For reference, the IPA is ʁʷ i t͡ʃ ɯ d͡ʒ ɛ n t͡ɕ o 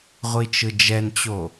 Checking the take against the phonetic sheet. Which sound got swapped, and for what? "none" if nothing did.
none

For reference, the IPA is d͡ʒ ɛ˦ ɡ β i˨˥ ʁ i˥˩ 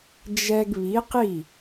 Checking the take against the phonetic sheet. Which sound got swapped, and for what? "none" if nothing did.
ʁ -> q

